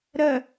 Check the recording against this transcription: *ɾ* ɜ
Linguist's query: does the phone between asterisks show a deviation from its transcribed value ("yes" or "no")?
no